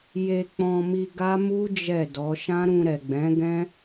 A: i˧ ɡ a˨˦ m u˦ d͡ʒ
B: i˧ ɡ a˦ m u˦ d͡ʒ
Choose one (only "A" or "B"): B